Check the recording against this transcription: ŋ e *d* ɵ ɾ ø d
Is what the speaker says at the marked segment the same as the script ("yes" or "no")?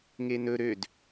no